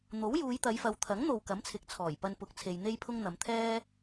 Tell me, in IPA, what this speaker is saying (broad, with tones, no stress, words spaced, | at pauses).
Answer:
n̪o˨˥wjuː˨˧jt̪ɐ˨˧jfɐ˨˧w t̪ʰɐ˨˥ŋn̪o˨w kɐ˨˥mt͡sʰɪ˨˥k̚t͡sʰɔː˨˩jpɐ˧n pʊ˧k̚t͡sʰe˧jn̪e˥jpʰʊ˥ŋ n̪ɐ˨˧mt̪ʰɛː˥